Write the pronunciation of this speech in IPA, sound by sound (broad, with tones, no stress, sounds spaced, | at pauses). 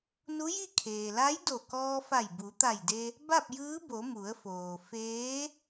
n u˧˥ j i˥˨ kʰ eː˩ l a˧˥ j d o˧˩ k ɔː˧ f a˧˩ j b u˩˧ t̪ a˧˩ j d e˧ | b a˥˨ p̚ j ɯː˧˥ b o˩˧ m u˩˧ ə̯ f oː˩ f eː˧˥